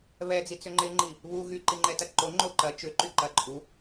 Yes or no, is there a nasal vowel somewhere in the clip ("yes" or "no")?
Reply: no